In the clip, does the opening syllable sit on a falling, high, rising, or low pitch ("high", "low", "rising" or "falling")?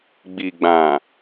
low